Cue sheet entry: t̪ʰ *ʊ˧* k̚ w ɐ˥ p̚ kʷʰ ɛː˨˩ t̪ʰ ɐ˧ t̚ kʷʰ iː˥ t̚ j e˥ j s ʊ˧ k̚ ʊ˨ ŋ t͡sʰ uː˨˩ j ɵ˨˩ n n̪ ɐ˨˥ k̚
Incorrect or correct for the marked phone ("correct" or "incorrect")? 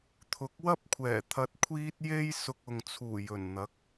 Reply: incorrect